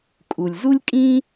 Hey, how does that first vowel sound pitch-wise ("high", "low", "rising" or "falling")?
low